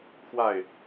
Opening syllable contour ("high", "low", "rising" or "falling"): falling